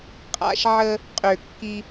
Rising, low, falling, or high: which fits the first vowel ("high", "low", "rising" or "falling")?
low